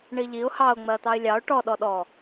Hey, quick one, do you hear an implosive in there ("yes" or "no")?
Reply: yes